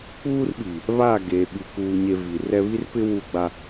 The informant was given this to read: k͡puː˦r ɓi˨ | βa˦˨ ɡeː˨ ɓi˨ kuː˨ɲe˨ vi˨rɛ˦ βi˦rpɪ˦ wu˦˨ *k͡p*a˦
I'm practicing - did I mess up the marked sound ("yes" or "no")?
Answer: yes